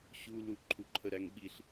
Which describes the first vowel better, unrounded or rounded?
rounded